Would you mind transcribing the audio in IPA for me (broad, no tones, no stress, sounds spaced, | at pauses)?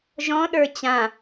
ʒ ɔ̃ ɗ ə˞ t͡ɕ ã